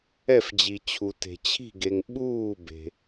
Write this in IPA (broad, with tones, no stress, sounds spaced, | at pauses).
ɛ˥˩ f d͡ʑ i˨ t͡ɕʰ u˨ t e̤˨ t͡ɕʰ i̤˥˩ ɡ e˨ ŋ ɓ uː˥˩ b e̤˨